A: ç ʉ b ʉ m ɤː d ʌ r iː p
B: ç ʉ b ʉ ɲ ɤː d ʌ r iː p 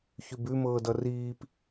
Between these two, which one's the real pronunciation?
A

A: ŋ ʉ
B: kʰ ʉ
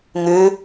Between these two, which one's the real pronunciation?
A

